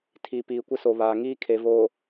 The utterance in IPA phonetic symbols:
tʰi˨ piː˨kʷɪ˦so˨ βaː˨ŋiː˦ kʰe˨voː˨

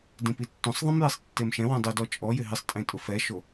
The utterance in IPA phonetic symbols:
dĩpitːũsˤðˤĩm jesˤtːemʃɛ̃wũ dˤʊdɔ t͡ʃʼɔjɪ ɦɪsˤtʼẽ tʼʊfɛʃo

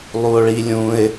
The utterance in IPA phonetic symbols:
lˠuo̯ɭilʲũe̯

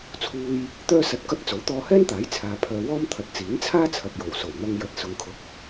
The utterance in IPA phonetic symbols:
t͡sʰuː˧j | t̪œː˥sɐ˧t̚kɐ˥t̚ t͡so˨˥wt̪ɔː˧hɛː˥nt̪aː˨˥j t͡sʰaː˨pʰœː˧ wɔː˥m t̪ʰɐ˨˥t̚t͡siː˨˥nt͡sʰaː˥ t͡sʰɐ˨p̚jo˨˩wso˨˩w n̪ɐ˧ŋ jɐ˧t̚ sʊ˧ŋkʰʊ˧k̚

